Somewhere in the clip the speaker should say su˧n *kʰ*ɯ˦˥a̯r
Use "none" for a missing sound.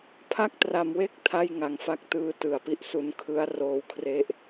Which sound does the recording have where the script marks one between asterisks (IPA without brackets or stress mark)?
kʰ